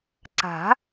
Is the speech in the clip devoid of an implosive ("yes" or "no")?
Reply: yes